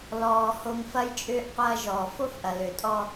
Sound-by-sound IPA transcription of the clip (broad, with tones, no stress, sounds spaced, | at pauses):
l ɔː˨ h o˨ ŋ f ɐ˦ j t͡ʃʼ ʏː˦ ʔ qʷ ɐː˦ ʒ ɔː˨ f o˦ f ʔ ɐ˨ l ø˨ tʼ ɔ˦